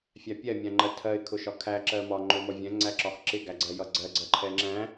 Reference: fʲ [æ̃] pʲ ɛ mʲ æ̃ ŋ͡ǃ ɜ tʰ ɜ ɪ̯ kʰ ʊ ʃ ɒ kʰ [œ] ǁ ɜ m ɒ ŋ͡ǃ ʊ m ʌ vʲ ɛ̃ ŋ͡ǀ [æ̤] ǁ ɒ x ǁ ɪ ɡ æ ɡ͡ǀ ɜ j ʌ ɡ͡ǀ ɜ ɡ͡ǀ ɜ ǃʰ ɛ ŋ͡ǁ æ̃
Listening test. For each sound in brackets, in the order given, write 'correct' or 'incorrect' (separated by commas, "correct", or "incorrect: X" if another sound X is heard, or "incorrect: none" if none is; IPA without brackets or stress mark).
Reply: incorrect: æ, incorrect: æ, incorrect: æ